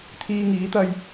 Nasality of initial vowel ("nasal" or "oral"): oral